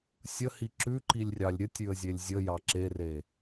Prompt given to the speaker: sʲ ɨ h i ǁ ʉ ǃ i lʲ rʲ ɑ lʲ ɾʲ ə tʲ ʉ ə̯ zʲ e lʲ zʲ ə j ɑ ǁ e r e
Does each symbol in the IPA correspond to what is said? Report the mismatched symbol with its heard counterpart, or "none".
ɨ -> ə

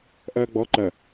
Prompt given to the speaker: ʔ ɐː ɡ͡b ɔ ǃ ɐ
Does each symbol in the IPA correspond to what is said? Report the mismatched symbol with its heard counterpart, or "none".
none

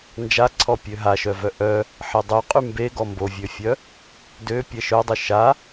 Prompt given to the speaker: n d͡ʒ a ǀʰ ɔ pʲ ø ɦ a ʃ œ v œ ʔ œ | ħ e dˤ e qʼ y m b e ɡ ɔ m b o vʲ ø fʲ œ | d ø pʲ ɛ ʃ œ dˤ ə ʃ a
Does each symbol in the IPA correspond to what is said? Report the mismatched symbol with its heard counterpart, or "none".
none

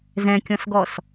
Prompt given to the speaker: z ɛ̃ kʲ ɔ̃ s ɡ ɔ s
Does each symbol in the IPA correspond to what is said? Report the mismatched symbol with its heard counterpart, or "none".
none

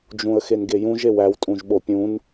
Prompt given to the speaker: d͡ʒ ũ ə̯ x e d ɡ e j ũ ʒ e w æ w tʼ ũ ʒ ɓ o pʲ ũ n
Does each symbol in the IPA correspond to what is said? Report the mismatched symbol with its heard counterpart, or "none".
d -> n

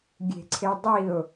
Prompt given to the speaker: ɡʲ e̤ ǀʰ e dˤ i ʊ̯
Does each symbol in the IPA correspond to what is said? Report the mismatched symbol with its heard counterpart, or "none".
none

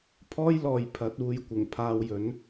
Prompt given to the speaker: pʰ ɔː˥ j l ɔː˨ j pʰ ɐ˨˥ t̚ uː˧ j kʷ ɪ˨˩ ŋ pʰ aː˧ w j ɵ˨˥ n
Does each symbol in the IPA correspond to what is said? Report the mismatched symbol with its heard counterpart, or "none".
none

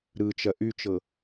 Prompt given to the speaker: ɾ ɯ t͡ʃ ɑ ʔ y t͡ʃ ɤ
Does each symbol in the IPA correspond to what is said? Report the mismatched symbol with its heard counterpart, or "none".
ɑ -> ɐ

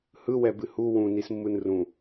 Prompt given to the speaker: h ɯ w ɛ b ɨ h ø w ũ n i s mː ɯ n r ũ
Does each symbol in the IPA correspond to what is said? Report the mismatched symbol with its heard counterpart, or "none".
ø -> u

